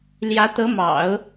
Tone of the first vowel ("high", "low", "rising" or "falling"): rising